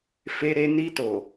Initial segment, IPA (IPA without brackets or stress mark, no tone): f